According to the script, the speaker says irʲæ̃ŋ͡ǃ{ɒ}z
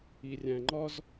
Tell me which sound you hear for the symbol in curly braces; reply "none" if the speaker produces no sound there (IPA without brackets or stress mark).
ɒ